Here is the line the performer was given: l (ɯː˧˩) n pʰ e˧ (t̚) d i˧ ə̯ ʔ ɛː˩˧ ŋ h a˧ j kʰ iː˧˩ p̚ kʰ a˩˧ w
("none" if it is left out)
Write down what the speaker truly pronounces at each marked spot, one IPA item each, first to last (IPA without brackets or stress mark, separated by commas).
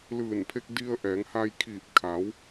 ɯː˧˩, k̚